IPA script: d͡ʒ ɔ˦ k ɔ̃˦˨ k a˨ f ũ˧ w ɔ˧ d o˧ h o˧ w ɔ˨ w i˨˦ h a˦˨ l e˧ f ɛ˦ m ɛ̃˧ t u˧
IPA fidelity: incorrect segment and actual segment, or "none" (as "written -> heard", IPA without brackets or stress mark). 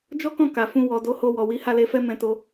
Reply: u˧ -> o˧